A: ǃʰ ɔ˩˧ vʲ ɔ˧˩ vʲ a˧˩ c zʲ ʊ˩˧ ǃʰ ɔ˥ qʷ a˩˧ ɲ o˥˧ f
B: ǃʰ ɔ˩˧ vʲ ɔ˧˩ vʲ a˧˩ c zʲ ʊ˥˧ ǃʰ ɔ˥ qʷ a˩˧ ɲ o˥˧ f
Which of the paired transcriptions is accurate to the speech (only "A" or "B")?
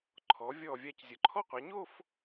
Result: A